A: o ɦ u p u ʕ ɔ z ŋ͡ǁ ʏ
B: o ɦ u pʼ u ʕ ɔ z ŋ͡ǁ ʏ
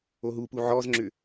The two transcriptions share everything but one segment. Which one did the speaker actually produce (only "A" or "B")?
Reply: A